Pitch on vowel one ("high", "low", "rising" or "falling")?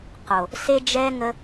low